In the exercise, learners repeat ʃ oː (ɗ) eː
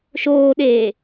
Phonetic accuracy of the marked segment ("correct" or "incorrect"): correct